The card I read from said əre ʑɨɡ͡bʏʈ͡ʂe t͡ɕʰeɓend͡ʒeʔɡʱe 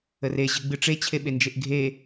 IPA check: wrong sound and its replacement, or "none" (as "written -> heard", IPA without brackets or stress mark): ʏ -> ɨ